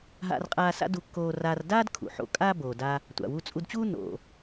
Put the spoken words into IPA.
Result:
ɦa̰˧rqʼaː˧ sa̰˥du˧kːoː˧ raː˧r daː˥d kʰṵ˩ħo̰˧ kʼaː˥boː˩da˧ | tʷa̰˩wu˧t͡sʼu˧dt͡ɕuː˥ no̰˩

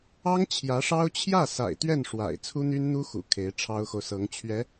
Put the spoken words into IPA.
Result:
ɑ˥ŋ t͡ɕʰjä˧˥ʂɑ˥ʊ̯ t͡ɕʰjä˥˩ sa̰˨˩ɪ̯t̪ɥɛ˥˩n ʂwa̰˨˩ɪ̯ t͡sʰu˥n̪y˥nn̪u˥ xṵ˨˩ kʰe˧˥ɪ̯ ʈ͡ʂʰɑ˥ʊ̯xo˨ʊ̯sɤ˧˥ŋ t͡ɕʰɥɛ˧˥

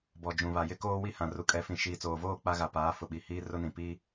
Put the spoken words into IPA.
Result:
bɔ˨d͡ʒũ˨βa˨ jɪ˦koː˦wi˦ hã˨ru˨kʼɛ˨˦fĩ˨ ʃiː˨t͡soː˨voː˦˨ k͡pa˦ɣa˨paː˨˦fʊ˨ ɓi˨hiː˦rʊ˦nĩ˨ pi˦

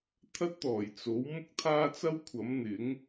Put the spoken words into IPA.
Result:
t̪ʰɐ˥t̚t̪ɔː˨˩j t͡so˨˥w mʊ˥k̚t̪ʰaː˥t͡sɐ˥wkʷʰɐ˨˥m n̪ɪ˨˥ŋ

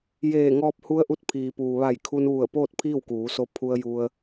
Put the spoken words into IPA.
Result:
jeː˧˩ŋɔː˧p̚ hu˧˥ə̯ʔu˧t̚pʰiː˩puː˩ ʋa˧˩jkʰu˧nʋu˧˩ə̯ poː˥˨t̚pʰiː˥˨wkuː˩˧so˧ pʰu˧ə̯ju˧ə̯

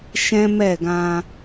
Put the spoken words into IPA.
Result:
ʃɛ̃˦mɛ˦˨ɡã˧

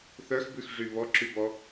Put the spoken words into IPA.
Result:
θœxbʉxʐy βɔǁybɔ

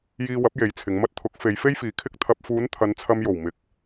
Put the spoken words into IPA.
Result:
jiː˧wɐ˨˥p̚ je˨˧jt͡sʰɪ˨˧ŋ mɐ˧t̚t̪ʰʊ˨˥k̚ fe˨˧jfe˥jfiː˨˧ kʰɪ˧k̚t̪ʰɐ˨p̚fuː˨˧n t̪ʰɐ˨˧nt͡sʰɐ˧mjo˨˩w mɪ˨˥k̚

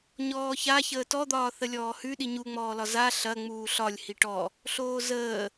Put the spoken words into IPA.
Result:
ɲɔːça çəːtɔd̪ɒː θəlʲɔːhʉ ɗiɲuŋ͡mɔːlɒ za ɬɐ ŋ͡muːɬɒlʲ hiʈɔ | ɬoːzəː

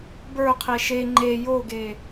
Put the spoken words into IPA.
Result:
bə˞qʰe ʃe ŋ͡ǃe joɡe

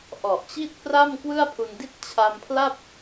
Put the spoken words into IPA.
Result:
ʔɔ˨˩ʔt͡ɕi˥˩t̚pra˥˩m kwɯ˥˩a̯pʰu˧ndi˥˩t̚ t͡ɕʰa˧mpʰla˥˩p̚

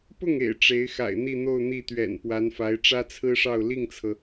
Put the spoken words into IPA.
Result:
pʊ˥˩ŋḛ˨˩ɪ̯ ʈ͡ʂe˧˥ɪ̯xa̰˨˩ɪ̯ n̪i˥˧n̪o˥˧ʊ̯ n̪i˥˩t̪ɥɛ̰˨˩n pwa˧˥nfa˧˥ɪ̯ ʈ͡ʂä˥t͡sʰɹ̩˥ʂɑ˥˧ʊ̯ li˥˩ŋt͡sʰɤ˩

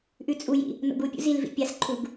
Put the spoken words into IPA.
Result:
ʔʉt͡sʼujḭ | no̰ɡupʲṵ zilvḭ pʲasǃʰuɡ

